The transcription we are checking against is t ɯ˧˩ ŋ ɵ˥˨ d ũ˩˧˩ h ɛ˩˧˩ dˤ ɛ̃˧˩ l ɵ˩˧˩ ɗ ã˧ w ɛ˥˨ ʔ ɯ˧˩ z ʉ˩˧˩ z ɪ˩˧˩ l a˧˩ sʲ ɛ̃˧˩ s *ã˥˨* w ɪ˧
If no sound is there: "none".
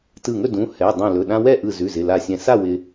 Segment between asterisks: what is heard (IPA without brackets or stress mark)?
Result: a˥˨